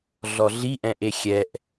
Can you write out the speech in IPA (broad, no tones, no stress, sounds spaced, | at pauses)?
ɮ ɔ ɮ i ʔ ɛ̃ ʔ e xʲ ɛ ʔ